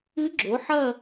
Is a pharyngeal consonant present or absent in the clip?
present